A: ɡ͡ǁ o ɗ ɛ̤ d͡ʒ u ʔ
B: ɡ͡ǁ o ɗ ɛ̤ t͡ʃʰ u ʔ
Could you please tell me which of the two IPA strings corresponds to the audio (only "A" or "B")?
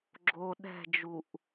A